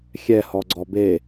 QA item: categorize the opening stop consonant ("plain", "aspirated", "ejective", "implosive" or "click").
click